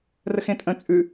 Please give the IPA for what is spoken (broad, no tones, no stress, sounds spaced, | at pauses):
r ə x ẽ tʼ ə̃ t͡sʼ ʉ